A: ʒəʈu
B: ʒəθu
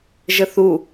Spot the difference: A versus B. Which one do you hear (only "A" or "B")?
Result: B